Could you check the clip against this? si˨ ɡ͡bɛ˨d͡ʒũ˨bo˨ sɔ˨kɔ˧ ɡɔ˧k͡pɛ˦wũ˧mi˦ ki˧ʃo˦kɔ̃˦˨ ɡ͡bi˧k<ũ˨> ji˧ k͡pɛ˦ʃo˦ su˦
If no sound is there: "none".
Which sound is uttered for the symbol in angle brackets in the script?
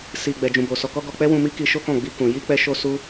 ũ˨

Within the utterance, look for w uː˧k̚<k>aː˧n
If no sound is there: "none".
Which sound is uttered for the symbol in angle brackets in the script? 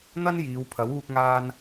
ŋ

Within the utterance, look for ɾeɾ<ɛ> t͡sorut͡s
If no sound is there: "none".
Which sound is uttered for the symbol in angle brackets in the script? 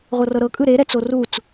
ɛ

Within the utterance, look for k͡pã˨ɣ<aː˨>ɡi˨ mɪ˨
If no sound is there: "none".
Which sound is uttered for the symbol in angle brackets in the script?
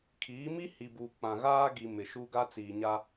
aː˦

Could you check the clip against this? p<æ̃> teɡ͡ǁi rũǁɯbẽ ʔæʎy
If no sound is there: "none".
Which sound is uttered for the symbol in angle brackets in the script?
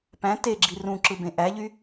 æ̃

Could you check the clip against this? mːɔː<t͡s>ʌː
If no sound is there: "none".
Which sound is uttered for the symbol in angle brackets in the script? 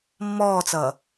t͡s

